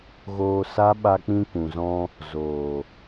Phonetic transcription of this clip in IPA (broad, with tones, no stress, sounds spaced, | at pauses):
ɣ oː˧ s a˦ ɓ a˧ k͡p ĩ˧ k ũ˨ z ɔ̃˧ | z oː˨